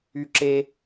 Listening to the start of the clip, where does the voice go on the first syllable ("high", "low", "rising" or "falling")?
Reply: high